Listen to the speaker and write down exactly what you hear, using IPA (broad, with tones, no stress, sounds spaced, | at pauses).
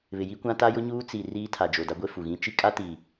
β ɪ˨ j i˦ kʷ ã˦ t a˦ j ʊ˦ ɲ uː˦ t͡s i˨ r iː˦ tʰ a˨ d͡ʒ o˨ d a˦ ɡʷ e˦ f u˨ ɣ ĩ˦ t͡ʃ i˦ kʼ a˦ t i˨